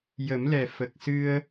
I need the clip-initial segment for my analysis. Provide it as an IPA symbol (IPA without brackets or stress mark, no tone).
j